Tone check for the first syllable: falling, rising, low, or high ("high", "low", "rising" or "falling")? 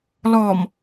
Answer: low